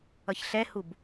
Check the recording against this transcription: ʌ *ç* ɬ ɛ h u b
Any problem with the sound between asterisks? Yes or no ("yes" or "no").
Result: no